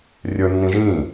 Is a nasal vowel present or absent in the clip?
present